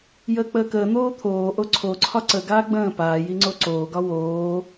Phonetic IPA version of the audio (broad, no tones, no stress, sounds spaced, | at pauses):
j əː k͡p əː k əː n̪ oː t̪ʰ oː ʔ o ǀʰ o ǀʰ ɒ ǀ ə ɡ aː ɡ͡b ə̃ː p aː j i ŋ͡ǀ o ǀ oː ɡ ɒ w oː